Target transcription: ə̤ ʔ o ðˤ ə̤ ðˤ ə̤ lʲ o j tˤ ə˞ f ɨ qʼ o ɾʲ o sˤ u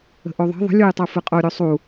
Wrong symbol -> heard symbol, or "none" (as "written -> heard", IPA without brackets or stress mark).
none